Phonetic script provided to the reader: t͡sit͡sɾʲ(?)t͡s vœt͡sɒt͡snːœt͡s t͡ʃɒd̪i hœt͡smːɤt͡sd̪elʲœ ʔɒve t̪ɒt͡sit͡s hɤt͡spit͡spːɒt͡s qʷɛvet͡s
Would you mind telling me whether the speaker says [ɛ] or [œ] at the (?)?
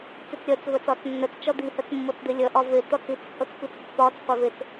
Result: œ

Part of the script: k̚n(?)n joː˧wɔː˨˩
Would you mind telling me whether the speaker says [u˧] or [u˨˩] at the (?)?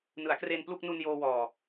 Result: u˧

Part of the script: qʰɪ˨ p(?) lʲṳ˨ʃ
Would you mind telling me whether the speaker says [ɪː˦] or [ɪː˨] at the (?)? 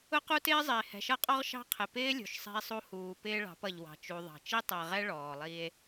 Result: ɪː˦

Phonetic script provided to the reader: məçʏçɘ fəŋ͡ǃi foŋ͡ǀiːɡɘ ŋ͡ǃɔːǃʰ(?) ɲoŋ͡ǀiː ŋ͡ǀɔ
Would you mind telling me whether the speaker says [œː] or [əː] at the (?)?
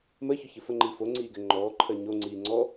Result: əː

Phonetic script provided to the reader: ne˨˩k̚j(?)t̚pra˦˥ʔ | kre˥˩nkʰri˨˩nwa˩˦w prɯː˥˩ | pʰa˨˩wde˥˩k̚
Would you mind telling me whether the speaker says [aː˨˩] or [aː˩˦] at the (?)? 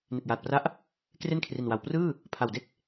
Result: aː˨˩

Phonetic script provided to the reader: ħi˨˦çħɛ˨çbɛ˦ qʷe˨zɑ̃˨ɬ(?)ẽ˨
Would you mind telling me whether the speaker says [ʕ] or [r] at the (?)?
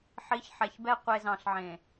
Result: ʕ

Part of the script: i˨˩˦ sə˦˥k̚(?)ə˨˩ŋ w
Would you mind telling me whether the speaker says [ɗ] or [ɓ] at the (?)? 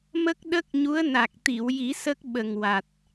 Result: ɓ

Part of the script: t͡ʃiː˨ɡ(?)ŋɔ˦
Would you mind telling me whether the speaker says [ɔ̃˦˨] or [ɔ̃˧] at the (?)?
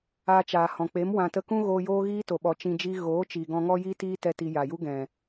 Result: ɔ̃˧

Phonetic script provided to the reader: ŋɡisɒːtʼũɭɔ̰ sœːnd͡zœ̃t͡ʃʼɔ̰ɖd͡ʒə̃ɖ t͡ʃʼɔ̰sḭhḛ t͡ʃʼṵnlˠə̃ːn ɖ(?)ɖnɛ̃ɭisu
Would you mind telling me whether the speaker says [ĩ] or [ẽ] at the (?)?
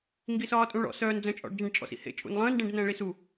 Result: ẽ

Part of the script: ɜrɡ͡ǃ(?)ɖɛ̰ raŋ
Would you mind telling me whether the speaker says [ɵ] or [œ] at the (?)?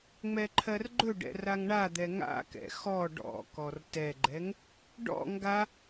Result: ɵ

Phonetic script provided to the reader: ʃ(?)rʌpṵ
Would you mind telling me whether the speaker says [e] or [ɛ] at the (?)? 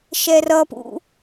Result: ɛ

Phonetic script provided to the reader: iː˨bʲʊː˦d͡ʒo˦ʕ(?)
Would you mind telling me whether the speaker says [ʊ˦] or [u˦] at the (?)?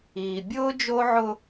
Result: ʊ˦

